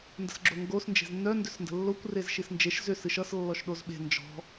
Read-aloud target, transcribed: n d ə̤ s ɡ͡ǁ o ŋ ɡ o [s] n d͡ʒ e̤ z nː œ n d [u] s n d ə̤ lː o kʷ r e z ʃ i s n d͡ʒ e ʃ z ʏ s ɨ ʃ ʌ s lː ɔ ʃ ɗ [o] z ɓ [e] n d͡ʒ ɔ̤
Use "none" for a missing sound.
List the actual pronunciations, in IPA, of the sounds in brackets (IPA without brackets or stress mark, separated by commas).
s, ʏ, o, e̤